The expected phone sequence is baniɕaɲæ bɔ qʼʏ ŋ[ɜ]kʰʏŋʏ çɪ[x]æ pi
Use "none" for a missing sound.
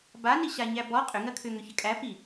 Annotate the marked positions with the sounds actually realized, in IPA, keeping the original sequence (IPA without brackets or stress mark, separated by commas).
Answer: ɜ, kʼ